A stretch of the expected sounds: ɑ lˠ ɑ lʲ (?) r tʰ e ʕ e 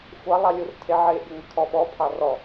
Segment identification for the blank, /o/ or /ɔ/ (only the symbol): o